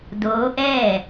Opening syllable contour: rising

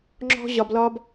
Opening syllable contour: high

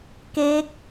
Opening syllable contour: rising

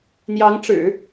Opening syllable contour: rising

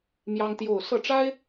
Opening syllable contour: high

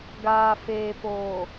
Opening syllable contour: low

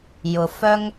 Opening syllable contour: low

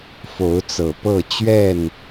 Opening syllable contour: rising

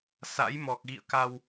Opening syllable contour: rising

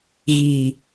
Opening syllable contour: low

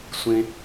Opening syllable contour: high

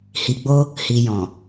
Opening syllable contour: low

